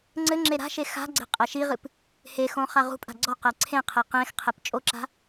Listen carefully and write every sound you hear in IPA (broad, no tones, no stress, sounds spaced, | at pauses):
ŋ͡ǀ ɘ ŋ͡ǁ e ɾ a̤ ʃ e x a̤ ɡ͡ǀ e̤ qʼ ɛ ʃ i ʁ ɨ p | h e x õ χ a ʁ ṳ pʼ a̤ ɡ͡ǀ ɔ q ɛ ǀʰ ẽ qʰ e q ẽ x qʰ e p t͡ʃʼ o ǁ a̤